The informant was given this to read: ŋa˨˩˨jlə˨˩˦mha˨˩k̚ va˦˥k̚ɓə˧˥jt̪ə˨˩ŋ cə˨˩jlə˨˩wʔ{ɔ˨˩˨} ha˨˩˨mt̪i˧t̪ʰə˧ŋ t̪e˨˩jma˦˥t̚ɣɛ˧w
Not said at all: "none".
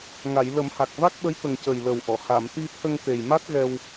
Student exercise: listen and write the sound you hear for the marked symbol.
ɔ˨˩˨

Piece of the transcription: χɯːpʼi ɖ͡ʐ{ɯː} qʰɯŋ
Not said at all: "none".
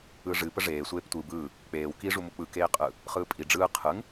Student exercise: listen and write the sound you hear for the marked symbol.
ɯː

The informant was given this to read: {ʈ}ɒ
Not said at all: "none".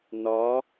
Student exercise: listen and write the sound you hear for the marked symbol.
n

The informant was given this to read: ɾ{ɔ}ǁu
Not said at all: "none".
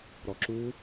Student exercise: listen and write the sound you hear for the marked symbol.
ɔ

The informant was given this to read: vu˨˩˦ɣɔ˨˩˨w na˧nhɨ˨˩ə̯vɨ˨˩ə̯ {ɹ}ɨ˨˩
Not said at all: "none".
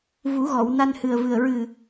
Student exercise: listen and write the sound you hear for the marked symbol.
ɹ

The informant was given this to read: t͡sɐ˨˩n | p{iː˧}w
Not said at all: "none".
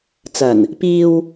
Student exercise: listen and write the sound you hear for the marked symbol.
iː˧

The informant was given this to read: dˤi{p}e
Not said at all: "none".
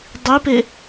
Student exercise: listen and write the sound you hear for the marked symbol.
p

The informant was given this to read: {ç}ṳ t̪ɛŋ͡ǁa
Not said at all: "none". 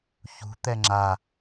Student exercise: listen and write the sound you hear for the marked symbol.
ç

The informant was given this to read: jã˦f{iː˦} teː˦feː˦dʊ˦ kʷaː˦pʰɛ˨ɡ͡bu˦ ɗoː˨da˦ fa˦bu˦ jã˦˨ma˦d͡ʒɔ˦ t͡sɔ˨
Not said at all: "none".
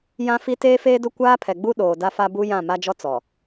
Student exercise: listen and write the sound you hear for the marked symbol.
i˦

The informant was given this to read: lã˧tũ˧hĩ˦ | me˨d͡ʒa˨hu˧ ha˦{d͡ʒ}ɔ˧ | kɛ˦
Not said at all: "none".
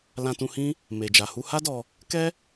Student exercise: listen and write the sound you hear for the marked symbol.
d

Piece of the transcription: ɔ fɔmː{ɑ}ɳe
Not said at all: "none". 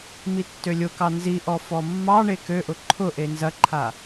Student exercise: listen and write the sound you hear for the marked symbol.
ɑ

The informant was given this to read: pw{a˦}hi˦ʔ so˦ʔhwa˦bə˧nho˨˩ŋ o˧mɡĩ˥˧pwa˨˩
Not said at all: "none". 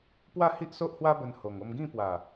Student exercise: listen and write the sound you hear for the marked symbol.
a˥˧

